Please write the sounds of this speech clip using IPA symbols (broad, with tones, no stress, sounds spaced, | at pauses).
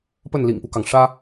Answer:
p ə˥˩ n l ḭ˨˩ ŋ p u˦ k ɑ˩ ŋ ʂ ä˥